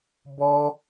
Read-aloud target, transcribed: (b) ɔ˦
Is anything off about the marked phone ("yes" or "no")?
no